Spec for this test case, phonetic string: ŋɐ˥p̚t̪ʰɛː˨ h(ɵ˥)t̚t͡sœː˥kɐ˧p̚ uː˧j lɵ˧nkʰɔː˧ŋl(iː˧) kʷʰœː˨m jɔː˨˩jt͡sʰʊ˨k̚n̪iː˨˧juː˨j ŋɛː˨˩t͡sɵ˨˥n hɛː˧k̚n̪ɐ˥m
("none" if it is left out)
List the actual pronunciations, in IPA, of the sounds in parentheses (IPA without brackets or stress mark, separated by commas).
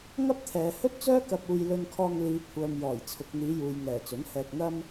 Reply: ɵ˥, iː˨˧